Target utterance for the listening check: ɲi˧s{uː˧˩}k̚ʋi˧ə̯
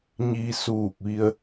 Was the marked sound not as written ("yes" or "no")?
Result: no